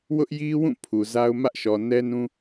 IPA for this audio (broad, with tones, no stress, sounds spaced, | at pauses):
w ʊ˦ ʔ j i˦ w ũ˦˨ pʰ u˨ z a˦ ʊ̯ m ä˦ ʔ ʃ ɔ˨ n ɛ˦ n ũ˦